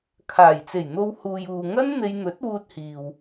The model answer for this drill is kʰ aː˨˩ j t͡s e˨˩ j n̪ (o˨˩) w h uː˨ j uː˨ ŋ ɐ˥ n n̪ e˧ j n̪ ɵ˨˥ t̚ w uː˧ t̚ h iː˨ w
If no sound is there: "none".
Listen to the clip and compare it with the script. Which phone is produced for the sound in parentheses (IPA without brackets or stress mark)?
o˧